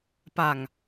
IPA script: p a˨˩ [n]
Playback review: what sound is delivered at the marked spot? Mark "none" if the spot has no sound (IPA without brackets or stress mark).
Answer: ŋ